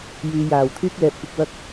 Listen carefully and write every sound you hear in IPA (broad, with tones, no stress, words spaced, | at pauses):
jyː˨˧jaː˨˩w t̪ʰyː˥k̚lɛː˨p̚kʷɐ˧k̚ wɐ˧k̚